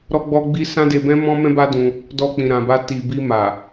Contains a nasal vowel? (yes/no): yes